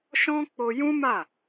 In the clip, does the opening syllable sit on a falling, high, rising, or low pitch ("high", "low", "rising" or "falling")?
high